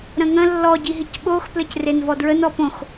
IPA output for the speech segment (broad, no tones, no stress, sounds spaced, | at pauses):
ɾ ə̃ ŋ ə̃ lː ɔ ɟ i ɦ i c ɓ o x p l ɘ c r e n v ɔ d ɹ ə n ɔ p õ x